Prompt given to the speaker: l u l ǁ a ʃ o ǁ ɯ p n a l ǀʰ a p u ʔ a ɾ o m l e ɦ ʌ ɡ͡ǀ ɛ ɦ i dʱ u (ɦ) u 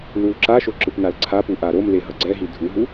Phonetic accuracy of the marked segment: correct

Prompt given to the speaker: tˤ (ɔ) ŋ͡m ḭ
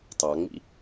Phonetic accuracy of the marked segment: incorrect: ɑ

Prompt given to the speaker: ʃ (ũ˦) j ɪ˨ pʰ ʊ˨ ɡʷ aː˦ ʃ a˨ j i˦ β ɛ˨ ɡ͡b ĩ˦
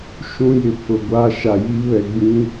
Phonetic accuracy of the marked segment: correct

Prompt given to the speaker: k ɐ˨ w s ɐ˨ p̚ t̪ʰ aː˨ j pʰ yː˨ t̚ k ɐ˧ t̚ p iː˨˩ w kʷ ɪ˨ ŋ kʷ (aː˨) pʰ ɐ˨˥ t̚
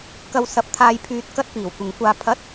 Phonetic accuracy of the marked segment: correct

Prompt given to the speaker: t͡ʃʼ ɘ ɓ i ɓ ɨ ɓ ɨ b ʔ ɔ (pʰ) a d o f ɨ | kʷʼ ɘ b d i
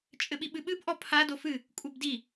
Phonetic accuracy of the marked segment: correct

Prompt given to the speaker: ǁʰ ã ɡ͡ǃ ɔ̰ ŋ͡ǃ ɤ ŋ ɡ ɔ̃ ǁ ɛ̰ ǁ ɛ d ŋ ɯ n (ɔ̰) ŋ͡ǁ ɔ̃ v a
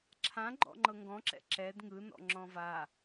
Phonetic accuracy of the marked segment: correct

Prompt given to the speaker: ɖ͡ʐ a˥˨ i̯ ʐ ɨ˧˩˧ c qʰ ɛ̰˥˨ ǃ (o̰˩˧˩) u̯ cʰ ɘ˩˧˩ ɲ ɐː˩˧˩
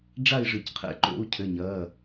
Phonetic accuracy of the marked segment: incorrect: o̰˥˨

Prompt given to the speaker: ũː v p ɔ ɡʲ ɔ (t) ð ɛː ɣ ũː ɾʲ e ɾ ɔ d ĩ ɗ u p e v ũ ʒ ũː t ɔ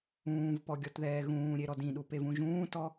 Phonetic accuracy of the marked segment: correct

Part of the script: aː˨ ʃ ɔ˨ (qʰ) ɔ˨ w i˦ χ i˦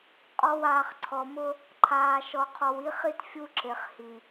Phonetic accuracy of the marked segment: correct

